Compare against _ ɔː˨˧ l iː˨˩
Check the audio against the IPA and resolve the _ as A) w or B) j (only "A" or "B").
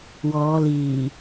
A